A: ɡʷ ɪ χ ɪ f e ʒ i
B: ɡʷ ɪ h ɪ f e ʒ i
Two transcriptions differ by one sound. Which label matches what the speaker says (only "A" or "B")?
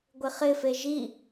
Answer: A